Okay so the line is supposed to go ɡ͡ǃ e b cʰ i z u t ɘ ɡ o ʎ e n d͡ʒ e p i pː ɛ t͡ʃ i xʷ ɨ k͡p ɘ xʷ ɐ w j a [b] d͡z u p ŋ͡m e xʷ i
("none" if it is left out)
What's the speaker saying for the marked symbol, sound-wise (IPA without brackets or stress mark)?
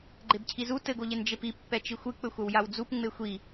w